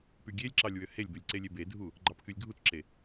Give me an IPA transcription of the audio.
p y ɡʲ e lʲ ǁ ɑ lʲ w ø h e lʲ b ø lʲ ǀ e lʲ e b e dʱ u | ɡ͡ǃ ɑ p k y lʲ ɡʱ u t ǁ e

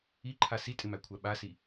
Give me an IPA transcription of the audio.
i ǃʰ a s i tʼ ɪ m æ kʷʰ æ ɓ a s i

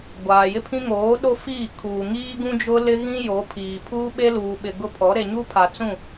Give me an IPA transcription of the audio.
ɡʷ aː˨ j ɪ˦ pʰ ĩ˦ ŋ oː˨˦ ɗ o˦ f iː˦˨ kʰ uː˨ ŋ iː˦ ɡ ũ˦ d͡ʒ ʊ˦ l ɪ˦ ɣ ĩ˦ j o˨˦ pʰ iː˨ pʰ uː˦ ɓ e˦ l uː˨ ɓ ɪ˨ ɡ ʊ˦ pʰ ɔ˨˦ ɾ e˨ ɲ u˦ pʰ a˨ t͡s ũ˦˨

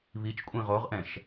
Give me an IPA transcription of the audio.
β i t͡ʃ kʷʼ ĩ ʁ o ʁ ʔ ɛ̃ ʃ

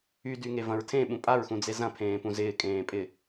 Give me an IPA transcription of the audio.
y d y ŋ e v ɐ̃ ɹ tʰ ẽ ɓ ũ pʼ a ɹ x ũ d͡z e z ɐ̃ pʰ ẽː p ũ z ɪː kʼ ẽː pʼ ɪ

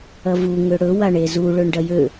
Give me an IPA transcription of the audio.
ɐ v u ŋ ø ɽ ɵ w a ɳ e z u ɭ ɵ ɳ ɖ ɐ j ø

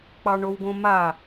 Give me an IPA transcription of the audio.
k͡p ɑ ɳ o w ɡ õ m a

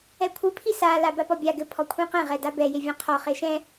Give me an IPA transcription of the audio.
ɛ kʷʰ ɨ pʰ i s a l a b a p ɔ bʲ a ɡ ɘ pʰ ɔ kʷʰ ĩ q ɛ̃ ʁ ɛ d a b ɛ j e vʲ ɛ̃ qʰ ɔ χ e ʃ ɛ̃

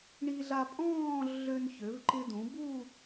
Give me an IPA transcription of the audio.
ɳ i˧ ɮ a˧ pʼ ɔ̃ː˥˧ ɮ ø˧ n ç ø˩˧ v ǃ ɪ˧ d ũ˩˧ b u˥˧

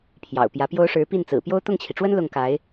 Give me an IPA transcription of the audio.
pʰ j ɑ̰˨˩ ʊ̯ p j ä˧˥ p j o˥ ʊ̯ ʂ ɻ̩˧˥ p i˥˩ n t͡s ɹ̩˨˩ p j o˥ ʊ̯ t̪ ʊ˥˩ ŋ t͡ɕʰ i˩ ʈ͡ʂ w ə˥ n l ʊ˥˩ ŋ k a˧˥ ɪ̯

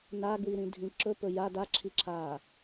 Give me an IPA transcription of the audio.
n a ɡ w i ɾ ĩ dʱ ĩ ǁ ɵ p ɵ j a d a ǁʰ i ǁʰ aː

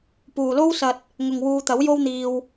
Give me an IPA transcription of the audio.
p uː˨ l o˥ w s ɐ˧ t̚ | ŋ ʊ˨ ŋ w uː˧ t̪ ɐ˨˥ w j o˥ w n̪ iː˧ w

